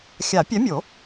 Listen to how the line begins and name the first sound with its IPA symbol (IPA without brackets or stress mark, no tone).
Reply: xʲ